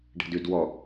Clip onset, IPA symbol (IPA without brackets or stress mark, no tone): ɖ